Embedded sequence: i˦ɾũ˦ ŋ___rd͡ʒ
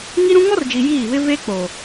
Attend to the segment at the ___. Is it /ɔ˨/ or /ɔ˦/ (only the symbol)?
ɔ˦